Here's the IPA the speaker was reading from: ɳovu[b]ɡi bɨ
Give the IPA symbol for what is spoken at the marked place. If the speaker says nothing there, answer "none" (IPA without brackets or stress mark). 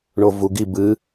none